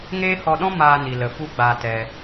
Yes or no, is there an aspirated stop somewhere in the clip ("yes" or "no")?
no